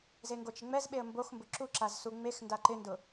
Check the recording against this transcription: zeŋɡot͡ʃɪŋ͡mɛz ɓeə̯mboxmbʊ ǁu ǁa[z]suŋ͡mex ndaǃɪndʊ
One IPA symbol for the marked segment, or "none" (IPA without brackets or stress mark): z